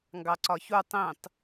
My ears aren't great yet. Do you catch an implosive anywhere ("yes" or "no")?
no